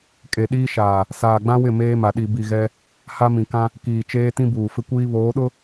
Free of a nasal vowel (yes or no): no